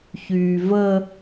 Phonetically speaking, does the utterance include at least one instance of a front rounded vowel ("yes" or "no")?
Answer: yes